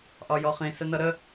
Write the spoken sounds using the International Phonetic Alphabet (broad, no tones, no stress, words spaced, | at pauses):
ʔɒjɔχĩ sənʌɾə